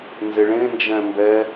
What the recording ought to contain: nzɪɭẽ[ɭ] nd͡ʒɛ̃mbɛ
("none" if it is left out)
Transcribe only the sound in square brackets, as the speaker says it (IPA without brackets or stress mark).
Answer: none